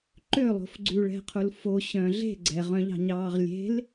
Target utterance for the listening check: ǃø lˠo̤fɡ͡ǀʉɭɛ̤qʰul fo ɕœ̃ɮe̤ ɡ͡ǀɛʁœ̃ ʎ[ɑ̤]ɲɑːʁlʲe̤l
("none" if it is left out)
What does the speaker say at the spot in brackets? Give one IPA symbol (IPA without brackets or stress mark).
ɑ̤